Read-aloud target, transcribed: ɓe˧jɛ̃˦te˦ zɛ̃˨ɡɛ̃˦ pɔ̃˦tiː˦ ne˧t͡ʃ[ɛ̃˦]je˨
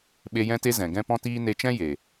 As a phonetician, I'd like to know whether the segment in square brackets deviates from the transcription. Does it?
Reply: no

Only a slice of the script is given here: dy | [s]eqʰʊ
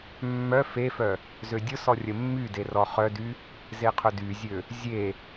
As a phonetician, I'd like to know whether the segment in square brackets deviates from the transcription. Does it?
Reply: yes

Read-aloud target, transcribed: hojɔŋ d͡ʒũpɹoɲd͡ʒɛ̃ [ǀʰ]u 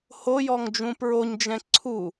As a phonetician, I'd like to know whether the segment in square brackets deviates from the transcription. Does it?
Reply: no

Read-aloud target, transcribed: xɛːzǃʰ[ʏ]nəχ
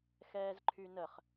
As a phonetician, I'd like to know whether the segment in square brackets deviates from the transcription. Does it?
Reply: yes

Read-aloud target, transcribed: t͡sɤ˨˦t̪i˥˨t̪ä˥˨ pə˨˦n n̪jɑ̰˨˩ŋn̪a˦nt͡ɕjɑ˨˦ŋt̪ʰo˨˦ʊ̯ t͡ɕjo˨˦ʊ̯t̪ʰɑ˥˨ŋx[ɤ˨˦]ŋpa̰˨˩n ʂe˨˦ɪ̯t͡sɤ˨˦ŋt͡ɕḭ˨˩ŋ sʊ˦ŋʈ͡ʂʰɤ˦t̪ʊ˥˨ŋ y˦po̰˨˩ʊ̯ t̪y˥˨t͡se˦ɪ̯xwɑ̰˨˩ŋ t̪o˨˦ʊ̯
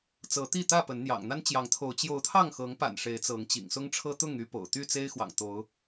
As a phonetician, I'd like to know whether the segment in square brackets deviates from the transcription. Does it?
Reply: no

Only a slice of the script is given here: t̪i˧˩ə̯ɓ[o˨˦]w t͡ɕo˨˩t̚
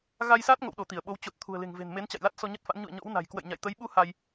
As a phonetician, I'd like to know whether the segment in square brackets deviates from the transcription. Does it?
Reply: no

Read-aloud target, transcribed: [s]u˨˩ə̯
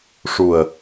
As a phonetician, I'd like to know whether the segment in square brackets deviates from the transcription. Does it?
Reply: yes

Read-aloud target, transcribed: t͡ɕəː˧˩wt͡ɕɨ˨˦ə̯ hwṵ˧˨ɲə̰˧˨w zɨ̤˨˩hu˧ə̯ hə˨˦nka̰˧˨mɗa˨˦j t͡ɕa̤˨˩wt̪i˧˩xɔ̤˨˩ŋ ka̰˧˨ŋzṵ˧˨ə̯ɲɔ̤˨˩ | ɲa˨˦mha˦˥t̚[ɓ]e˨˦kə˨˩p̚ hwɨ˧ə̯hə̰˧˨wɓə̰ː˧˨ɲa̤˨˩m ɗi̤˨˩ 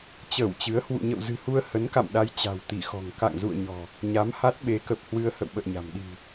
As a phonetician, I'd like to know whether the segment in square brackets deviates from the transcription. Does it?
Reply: no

